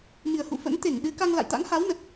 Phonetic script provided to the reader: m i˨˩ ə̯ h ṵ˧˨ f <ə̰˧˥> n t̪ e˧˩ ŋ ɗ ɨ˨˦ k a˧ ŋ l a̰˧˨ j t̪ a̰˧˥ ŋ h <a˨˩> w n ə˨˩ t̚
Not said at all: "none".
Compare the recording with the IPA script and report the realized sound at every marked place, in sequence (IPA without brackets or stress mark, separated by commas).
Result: ə̰˧˥, a˨˦